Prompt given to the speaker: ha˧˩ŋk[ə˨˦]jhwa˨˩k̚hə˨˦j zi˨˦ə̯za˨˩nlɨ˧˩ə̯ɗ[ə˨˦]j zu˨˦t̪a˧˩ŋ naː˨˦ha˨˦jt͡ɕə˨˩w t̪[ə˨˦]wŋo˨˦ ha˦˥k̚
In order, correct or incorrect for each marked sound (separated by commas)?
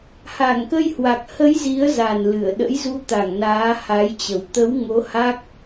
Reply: incorrect, incorrect, correct